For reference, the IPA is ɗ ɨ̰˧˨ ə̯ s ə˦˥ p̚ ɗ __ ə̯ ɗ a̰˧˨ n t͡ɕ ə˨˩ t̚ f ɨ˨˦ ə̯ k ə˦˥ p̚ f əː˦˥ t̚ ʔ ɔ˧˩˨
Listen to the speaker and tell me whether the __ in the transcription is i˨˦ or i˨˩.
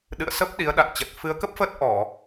i˨˦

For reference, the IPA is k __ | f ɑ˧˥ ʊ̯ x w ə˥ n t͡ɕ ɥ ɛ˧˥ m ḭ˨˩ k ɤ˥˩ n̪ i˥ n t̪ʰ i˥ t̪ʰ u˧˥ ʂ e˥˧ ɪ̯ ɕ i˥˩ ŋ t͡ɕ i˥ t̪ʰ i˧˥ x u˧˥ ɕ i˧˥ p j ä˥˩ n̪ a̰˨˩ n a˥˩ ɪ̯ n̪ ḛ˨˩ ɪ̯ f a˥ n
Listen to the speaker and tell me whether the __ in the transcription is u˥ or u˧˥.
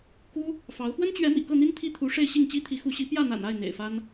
u˥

